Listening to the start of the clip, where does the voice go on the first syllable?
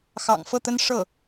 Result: low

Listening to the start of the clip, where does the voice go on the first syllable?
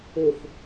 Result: low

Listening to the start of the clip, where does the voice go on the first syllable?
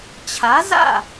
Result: rising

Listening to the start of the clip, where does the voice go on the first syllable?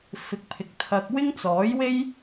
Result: rising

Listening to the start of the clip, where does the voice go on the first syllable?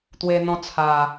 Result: high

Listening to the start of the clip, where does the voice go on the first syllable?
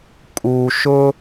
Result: low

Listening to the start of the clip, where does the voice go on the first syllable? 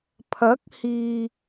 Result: rising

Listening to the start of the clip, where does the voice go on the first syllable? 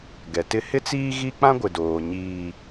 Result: low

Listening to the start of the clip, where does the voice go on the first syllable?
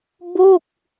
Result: falling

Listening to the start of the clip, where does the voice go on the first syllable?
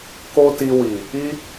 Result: high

